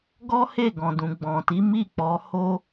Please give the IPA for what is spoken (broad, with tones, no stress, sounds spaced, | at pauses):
ɡ ɔ˦ h e˦˨ ɡ ɔ̃˨ d ũ˨ ɡ͡b ɔ̃˨ t i˨˦ m i˦˨ k͡p ɔ˨˦ h o˦